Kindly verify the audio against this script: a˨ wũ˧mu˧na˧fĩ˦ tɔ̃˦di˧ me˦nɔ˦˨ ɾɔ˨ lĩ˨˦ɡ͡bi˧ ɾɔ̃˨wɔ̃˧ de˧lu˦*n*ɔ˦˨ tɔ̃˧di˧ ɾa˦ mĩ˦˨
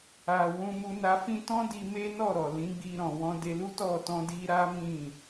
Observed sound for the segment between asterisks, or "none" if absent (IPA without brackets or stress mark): t